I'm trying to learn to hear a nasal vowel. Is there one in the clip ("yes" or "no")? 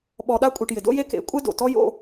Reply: no